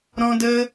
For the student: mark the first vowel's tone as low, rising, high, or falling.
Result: high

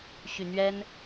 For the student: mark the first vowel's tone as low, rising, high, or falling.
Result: low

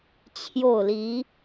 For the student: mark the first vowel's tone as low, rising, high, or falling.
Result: falling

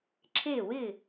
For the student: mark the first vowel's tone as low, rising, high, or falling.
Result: falling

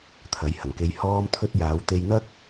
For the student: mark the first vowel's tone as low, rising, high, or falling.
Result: rising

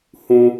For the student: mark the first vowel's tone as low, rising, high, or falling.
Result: high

